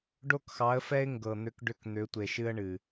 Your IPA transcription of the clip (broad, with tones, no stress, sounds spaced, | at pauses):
ɖ o˦˨ k x ɑ˨˦ ə̯ f ɛ˦ ɪ̯ ŋ ɡ ɤ˨ n̪ ʏ˦ k ɖ ʏ˦˨ k n̪ ʏ˨˦ tʷ e˨ ʃ ɨ˦ ə̯ ɳ ɨ˨